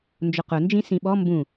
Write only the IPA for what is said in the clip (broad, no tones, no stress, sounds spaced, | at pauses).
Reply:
n d͡ʒ ʊ q ʊ n d͡ʒ ĩ s ĩ ɓ ɔ m b ũ